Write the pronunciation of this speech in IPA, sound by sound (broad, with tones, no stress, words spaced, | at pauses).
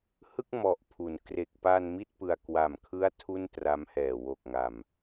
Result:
hɯ˥˩k̚mɔ˨˩ʔpʰu˩˦n kre˨˩k̚pa˧n mi˥˩t̚pɯ˧a̯ kwa˨˩mkʰɯ˦˥a̯ tʰu˥˩ntra˦˥mhɛː˨˩ wo˨˩k̚ŋa˨˩m